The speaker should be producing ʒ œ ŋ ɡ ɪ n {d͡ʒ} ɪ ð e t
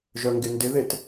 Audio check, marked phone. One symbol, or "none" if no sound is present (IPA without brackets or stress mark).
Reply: d